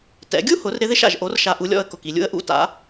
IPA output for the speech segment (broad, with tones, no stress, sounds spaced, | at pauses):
t ɛ̰˩˧ ɡʲ u˥ h ʊ˩˧ r ɾ ɪ˧˥ ð ɪ˥ ʃ a̰˩ ʒ ʔ o˩˧ r ʃ a˩ ʔ u˩˧ lʲ ɔ̰˩˧ ə̯ k ʊ˩ k i˩ lʲ ṵ˧ ə̯ ʔ ṵ˧˥ t a̰˩˧